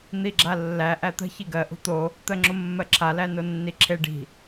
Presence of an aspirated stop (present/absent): present